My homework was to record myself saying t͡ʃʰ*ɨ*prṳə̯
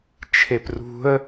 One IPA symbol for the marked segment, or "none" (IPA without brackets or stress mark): e